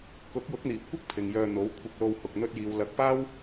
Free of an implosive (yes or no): yes